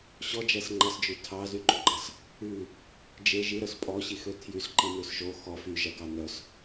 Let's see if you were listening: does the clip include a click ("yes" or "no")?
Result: yes